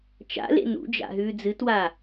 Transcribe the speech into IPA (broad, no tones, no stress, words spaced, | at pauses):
t͡ʃa̰lḛ nṵd͡ʒa̰ ɦʉːd͡zɨtwa